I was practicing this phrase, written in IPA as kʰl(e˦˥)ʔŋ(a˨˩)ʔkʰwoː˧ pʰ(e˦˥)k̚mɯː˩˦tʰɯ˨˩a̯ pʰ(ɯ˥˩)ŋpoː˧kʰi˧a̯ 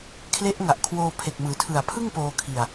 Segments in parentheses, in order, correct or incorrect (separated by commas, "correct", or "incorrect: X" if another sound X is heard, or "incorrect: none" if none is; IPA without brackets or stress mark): correct, correct, incorrect: e˨˩, correct